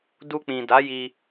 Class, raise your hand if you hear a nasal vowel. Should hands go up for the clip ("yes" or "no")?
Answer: yes